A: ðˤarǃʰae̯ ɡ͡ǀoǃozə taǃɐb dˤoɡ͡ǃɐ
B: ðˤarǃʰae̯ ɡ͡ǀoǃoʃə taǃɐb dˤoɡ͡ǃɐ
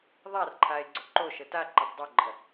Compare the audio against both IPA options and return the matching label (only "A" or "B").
B